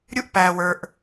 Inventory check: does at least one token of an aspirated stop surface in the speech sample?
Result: no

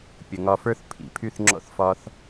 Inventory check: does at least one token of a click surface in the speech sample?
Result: yes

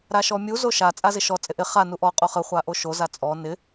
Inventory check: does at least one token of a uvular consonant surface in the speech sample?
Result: yes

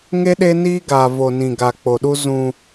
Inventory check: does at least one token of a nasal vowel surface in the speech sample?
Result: yes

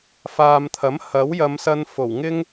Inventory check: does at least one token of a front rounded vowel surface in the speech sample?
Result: no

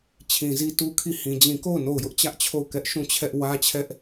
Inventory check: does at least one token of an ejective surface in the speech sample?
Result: no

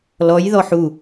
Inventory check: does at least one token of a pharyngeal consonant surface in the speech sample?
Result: yes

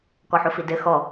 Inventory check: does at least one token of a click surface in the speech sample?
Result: no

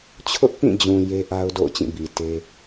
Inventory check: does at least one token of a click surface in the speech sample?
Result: no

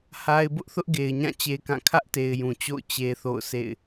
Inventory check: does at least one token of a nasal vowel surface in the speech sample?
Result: yes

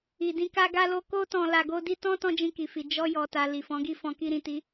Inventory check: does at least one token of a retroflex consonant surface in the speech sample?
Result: no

